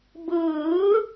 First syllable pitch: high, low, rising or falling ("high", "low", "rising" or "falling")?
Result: rising